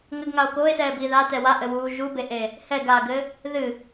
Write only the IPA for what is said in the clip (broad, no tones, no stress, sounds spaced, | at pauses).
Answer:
ŋ ɘ ɡ ŋ a o̯ k oː e̯ s ɛː b iː ð a t ɛ w a ʔ ɘ w uː ʒ u b e ʔ e | h ɛ ɡ aː ɡ ɘ | ð ɨ